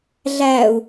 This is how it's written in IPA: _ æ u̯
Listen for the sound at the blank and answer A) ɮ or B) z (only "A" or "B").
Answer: A